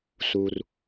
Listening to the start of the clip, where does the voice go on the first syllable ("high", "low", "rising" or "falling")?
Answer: low